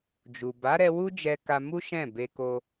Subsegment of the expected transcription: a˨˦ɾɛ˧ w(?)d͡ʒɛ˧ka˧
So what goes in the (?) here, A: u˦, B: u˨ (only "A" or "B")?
A